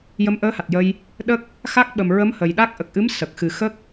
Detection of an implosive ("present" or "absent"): present